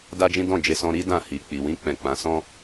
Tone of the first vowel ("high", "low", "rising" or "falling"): high